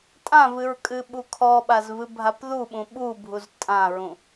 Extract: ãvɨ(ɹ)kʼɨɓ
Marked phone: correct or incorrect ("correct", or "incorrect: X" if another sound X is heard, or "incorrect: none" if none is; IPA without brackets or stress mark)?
correct